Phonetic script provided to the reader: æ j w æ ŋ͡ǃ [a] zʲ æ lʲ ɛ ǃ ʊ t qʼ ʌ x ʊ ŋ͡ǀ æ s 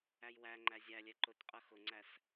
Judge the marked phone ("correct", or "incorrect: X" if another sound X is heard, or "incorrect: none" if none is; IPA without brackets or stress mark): incorrect: æ